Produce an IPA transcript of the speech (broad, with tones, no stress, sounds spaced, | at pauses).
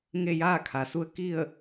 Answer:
ŋ e˥˨ j aː˥˨ kʰ a˩ s u˧˥ ə̯ k i˥˨ ə̯